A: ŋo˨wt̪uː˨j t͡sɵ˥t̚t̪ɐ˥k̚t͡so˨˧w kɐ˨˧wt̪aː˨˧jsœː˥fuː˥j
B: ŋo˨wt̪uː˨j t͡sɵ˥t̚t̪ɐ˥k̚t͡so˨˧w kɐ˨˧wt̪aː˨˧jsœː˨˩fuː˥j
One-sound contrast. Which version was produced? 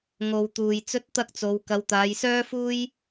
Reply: A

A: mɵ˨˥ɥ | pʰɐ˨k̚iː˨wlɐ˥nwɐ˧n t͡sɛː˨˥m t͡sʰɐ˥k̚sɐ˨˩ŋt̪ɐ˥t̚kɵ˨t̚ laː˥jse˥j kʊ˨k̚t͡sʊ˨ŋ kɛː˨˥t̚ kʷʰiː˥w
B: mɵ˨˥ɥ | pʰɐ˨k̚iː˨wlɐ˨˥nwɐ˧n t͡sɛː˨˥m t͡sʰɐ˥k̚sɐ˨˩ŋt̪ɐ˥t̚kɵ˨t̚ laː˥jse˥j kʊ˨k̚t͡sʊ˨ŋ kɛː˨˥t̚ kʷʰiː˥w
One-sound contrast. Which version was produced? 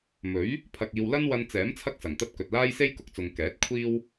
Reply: A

